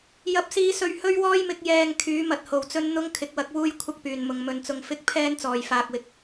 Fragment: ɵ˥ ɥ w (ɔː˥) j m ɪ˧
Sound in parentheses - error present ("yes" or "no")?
no